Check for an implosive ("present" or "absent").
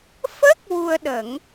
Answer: present